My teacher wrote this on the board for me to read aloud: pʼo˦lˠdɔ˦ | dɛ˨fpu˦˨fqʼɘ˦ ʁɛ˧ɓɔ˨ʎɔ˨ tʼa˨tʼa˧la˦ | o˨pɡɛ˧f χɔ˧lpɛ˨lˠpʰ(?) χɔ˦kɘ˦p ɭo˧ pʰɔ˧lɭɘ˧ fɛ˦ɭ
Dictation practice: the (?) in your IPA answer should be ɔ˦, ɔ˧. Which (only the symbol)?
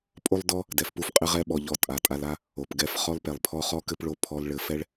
ɔ˧